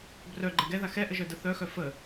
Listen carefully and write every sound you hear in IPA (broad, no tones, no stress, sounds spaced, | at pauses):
b r œ ɡ͡ǃ ɛ ɡ ɛ ð a x ɛ ʔ ə ʒ œ d ə θ œ x œ f ə